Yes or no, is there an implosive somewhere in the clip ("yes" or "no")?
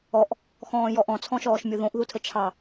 no